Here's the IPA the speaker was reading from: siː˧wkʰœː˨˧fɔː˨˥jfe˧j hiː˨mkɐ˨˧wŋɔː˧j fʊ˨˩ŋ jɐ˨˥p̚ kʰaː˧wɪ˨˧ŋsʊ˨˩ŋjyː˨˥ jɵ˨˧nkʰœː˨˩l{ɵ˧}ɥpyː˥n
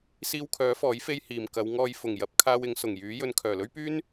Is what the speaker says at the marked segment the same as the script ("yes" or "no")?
no